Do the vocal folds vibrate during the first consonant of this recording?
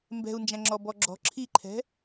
yes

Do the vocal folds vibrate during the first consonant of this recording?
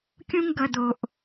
no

